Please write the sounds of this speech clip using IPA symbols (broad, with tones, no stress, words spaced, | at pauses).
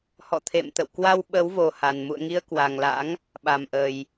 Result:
hɔ̰˧˨t̪ʰḛ˧˨mt̪ə̰˧˨w kwa˧w ɓə˨˦wvo˨˩ ha˨˩n mṵ˧˨ə̯ŋi˧ə̯kwa˨˩ŋla̰˧˥ŋ | ɓa˨˩mʔə˨˩j